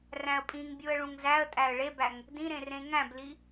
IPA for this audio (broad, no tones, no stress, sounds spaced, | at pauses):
r æ̃ ə̯ pʼ ĩ ŋ bʲ u ə̯ ɭ ũ ŋ z æ ə̯ tʼ æ ə̯ ɭ e b æ ŋ | d ĩ ɾ ẽ r ẽ ŋ æ̃ b l i